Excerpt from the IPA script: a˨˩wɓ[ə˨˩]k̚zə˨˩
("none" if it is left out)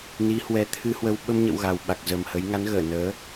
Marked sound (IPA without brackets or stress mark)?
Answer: a˨˩